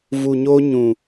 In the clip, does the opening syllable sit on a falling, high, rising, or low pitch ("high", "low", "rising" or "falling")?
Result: low